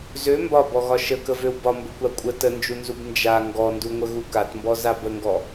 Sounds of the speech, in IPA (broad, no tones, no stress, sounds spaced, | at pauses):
z ø m b ɒ b ɔ ɣ ɒ ʃ ə k ə v ø w b ɒ m b ə kʷ a kʷʼ ə t ə n d͡ʒ u n z u b n d͡ʒ a ŋ ɡ ɔ n d u ŋʷ ə ɣ u k a t m b ɔ z a b ə ŋ ɡ ɔ